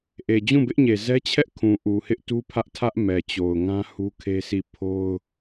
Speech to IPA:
ʔe˨d͡ʑũ˦˨bɪ˦ʔɲe˨ zɛ˦t͡ɕʰɛ˦ʔ kʰũ˨ʔu˨hɪ˦ʔ tu˦pʰä˦ʔtʰä˦ʔ mɛ˨t͡ɕo˨ʊ̯ŋã˦ hu˦kʰe˦sʰi˦˨ pʰo˦ʊ̯

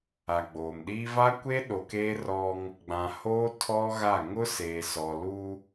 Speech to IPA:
a˨ɡ͡boː˨mɗiː˦ va˦kʷe˦ɗo˨keː˦ rɔ˦ŋ | ɡ͡bã˨ hoː˦ tʰɔ˦ɣa˦˨ ŋʊ˦seː˨sɔ˨ lu˦

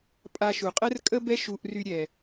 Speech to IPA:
pʼa˧ʃu˩qʼɛ˥rkʼə˥ bɛ˥ʃu˧ʔry˧ ɾʲɛ˩

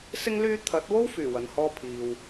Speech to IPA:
sɪ˥ŋ lyː˥ t̪ʰɐ˨˥t̚wo˥wfyː˨˩ wɐ˨nhɔː˥ pʰiː˨w

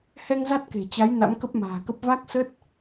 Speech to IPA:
hɛ˧ŋ za˦˥t̚ke̤˨˩t͡ɕa˨˦j na̰˧˥mkə˦˥p̚ma̤ː˨˩kə˦˥p̚ va˦˥k̚sə˦˥t̚

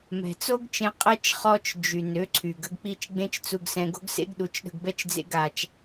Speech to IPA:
mɛ̤˨t͡so˦ɡt͡ʃẽ˧ qʼɛ˦t͡ʃ χɔ˦t͡ʃ d͡ʒy˨nø˨˦ǀʰy˨ɡ ə˧ɡk͡pi˧t͡ʃ ɡ͡bẽ˦t͡ʃt͡su˧ɡsɛ̃˧ ɡo̤˦ɡsḛ˦ɡɗu˨˦t͡ʃɗə̤˧ɡ bɛ˦t͡ʃd͡zḛ˦ɡa˧t͡ʃ

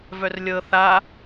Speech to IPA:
vœrlʲɤ θa

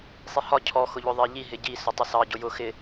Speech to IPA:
sˤihɒ cʰɔ xʊʎʊðˤɜʎi ɦɪɟi sʊtˤɪsɑ ɟʊjʊ xɪ

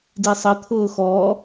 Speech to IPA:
disˤɘ t̪ʰʊːxɔ

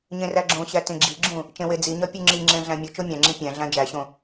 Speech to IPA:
ɲẽræɡ͡ǁõɕæ tẽɡ͡ǁiɡ͡ǁũ | t͡ʃẽwed͡ziɲɒ pʲuŋ͡ǁiŋ͡ǁẽ ɮæ̃mʲut͡ʃo mʲæ̃ŋ͡ǁĩ pʲæ̃ ɮæ̃d͡ʒæɕõ

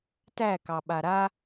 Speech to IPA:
tækɑɓa ɾa

